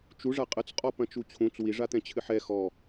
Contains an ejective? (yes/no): yes